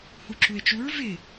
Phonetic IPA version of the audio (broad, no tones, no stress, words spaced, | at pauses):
huǁue̯t͡ʃuɹ vɪ